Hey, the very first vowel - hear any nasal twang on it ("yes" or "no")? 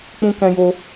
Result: yes